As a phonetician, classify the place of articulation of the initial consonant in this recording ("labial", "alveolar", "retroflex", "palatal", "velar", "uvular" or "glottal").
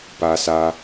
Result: labial